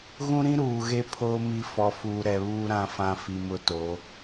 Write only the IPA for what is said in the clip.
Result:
ɣ ũ˦ ɾ ĩ˦ ɾ uː˨ ɣ e˦ pʰ oː˦ m i˦ f ɔ˨ f uː˨ ɾ ɛ˨ β uː˦ ɾ ã˦ f ã˦ f i˨ m ʊ˦ t o˨˦

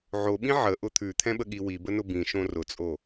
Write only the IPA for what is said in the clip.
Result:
ʕ o ɓ ĩ ʕ ə ʔ ʊ t̪ʰ ʉ t̪ʰ ɛ̃ ɓ ə ɠ i w i b ə n ʊ b ĩ ʃ õ r ʊ t͡sʼ o

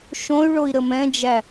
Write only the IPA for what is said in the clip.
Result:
ʃ õ y̯ ɭ o i̯ ɾ ə m ɛ̃ d͡ʒ æ

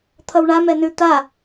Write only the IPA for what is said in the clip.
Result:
t̪ʰ ʌ w ɳ a m ɛ n ʉ t̪ a

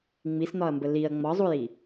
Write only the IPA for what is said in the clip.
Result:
ŋ͡m i s n̪ ɒ ɐ̯ m b ə l i ɐ̯ ŋ͡m ɒ zˤ u j i

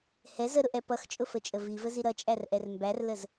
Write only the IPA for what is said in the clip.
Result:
h ɛ z ə ɾ ʊ ʔ ɛ p ʌ x t͡ʃʼ ʊ f ə t͡ʃʼ ə v i v ə z i ɾ ʌ t͡ʃʼ æ r ʔ ɛ r m b æ r l ə z

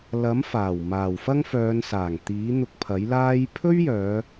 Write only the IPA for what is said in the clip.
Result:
l ɐ˨˥ m f aː˨˩ w m aː˨˩ w f ɐ˥ ŋ f œː˨˧ n s aː˨˩ ŋ t̪ iː˨˥ n̪ ʊ˧ k̚ pʰ ɐ˨˥ j l aː˥ j pʰ ɵ˥ ɥ j œː˨˧

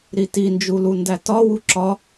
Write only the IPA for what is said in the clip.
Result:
ɾ i t i n d͡ʒ u l u n d æ t ɒ w u ǁ ɒ

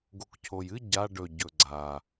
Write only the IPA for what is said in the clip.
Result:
ɡ o k cʰ o j ɨ ɟ a ɖ ɵ ɟ ɵ ɡ͡ǀ a

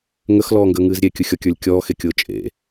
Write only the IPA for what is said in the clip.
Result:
ŋ ə x l ɔː ŋ ɡ əː ŋ ɨː z ɾʲ e kʲ ɯ xʲ ɔ kʲ ə˞ lʲ kʲ ɔː x e kʲ ʊː t͡ʃʼ ḛ

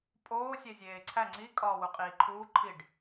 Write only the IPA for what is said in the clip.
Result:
pʼ oː sʲ e zʲ eː ǀʰ æ ŋ͡ǀ i kʼ ɒː w u qʼ iː ǃʰ uː ǃʰ i ɖ

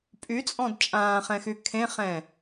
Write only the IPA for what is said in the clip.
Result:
pʼ y t͡sʼ ɔ̃ d t͡ʃʼ ãː χ ɛ̃ x y kʰ ẽ χ ɛ̃

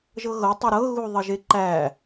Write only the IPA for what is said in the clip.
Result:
ʒ ɤ ɣ ɤ tˤ ɵ ɾ ɤ ɣ u ðˤ ə ʒ e ǃ æ

